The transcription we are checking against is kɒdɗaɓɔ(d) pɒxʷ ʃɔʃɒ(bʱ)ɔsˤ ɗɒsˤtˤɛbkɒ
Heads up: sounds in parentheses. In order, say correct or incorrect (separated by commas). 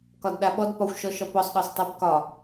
correct, incorrect